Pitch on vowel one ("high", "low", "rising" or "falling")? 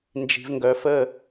low